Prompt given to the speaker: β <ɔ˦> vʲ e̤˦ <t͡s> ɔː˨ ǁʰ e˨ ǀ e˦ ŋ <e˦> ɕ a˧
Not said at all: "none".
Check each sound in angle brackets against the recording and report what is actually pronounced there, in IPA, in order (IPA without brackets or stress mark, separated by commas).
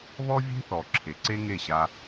ɔ˦, θ, e˦˨